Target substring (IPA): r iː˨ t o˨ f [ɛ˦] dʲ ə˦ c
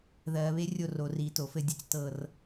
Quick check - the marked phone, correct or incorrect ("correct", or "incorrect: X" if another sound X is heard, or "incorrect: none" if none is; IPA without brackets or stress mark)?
incorrect: ɘ˦